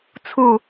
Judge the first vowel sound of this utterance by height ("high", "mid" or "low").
high